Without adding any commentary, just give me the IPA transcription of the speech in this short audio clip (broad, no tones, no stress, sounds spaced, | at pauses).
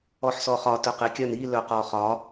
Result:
ɔ ħ s ɔ χ ɒ t œ q e kʲ œ n i l œ q ɔ χ ɒ